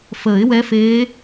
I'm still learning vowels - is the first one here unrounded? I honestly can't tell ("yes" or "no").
yes